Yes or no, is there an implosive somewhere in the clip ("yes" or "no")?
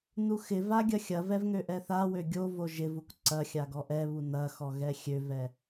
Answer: no